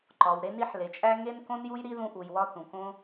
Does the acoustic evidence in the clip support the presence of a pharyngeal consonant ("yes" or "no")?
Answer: yes